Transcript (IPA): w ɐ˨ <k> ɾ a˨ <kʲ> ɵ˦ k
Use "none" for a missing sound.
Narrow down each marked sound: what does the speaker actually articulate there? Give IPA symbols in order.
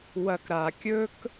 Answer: k, kʲ

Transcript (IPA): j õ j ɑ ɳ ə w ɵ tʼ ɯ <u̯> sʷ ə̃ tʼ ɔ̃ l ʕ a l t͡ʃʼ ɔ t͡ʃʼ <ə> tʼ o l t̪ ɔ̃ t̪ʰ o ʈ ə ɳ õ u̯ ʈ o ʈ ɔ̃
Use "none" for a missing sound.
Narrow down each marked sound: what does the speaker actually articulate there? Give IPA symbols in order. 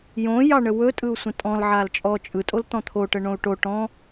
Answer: u̯, ɯ

